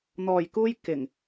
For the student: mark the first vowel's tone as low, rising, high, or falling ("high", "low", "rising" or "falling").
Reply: low